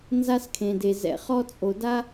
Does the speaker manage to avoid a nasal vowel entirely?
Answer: no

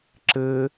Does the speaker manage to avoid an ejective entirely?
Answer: yes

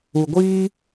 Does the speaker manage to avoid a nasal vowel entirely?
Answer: yes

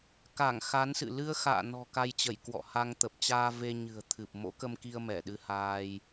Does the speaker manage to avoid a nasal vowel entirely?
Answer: yes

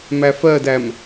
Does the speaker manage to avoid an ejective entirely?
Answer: yes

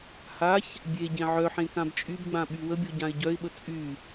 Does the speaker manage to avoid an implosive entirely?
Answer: no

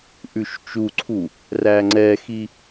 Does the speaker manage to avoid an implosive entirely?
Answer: yes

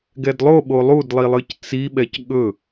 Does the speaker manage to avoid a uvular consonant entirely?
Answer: yes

